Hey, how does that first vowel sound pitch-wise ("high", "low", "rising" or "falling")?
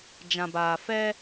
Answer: low